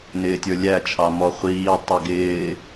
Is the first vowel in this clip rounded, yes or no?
no